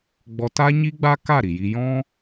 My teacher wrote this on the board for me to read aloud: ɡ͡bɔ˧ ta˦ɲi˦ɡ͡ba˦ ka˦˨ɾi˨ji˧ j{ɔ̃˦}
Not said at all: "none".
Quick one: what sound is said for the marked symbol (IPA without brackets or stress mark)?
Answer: ɔ̃˦